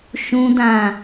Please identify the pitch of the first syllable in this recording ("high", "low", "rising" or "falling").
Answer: low